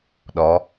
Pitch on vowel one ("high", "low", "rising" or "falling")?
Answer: rising